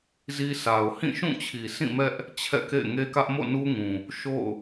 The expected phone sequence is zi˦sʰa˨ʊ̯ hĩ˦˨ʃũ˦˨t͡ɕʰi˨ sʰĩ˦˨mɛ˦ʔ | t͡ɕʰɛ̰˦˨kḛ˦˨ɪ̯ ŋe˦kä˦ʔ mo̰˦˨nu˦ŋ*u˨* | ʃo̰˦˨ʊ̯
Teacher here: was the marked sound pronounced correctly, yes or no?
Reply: no